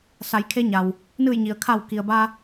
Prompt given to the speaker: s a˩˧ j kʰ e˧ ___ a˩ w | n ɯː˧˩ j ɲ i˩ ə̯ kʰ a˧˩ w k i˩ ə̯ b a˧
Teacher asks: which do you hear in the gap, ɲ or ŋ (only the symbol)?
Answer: ɲ